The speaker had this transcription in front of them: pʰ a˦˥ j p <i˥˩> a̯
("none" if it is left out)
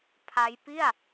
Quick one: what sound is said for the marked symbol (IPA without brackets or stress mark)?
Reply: i˥˩